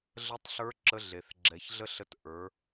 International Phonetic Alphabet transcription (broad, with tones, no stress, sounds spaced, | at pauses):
ɮ ə˧˥ tˤ ɬ ə˞˧˥ ǁ ə˧˥ ɮ e˩ θ ɡ͡ǁ ɛ˩˧ ç ɮ ə˥ ɬ ə˧˥ t ʔ ə˞˩˧